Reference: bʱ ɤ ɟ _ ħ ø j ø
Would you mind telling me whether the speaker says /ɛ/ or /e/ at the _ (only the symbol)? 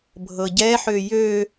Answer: ɛ